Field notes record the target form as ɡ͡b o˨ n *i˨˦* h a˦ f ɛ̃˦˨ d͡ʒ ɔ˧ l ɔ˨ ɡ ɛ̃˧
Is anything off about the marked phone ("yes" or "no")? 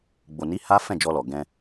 no